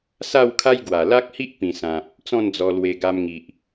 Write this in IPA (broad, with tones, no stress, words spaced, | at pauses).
sa˥˧wkʰa˦jɡwa˨˩ la˦k̚hi˦ʔ pĩ˨˩ sã˨p̚ | t͡sɔ̃˥˧nd͡zɔ˧lwe˧ ɡa˧mŋi˨ʔ